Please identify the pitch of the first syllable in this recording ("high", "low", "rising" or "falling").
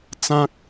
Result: high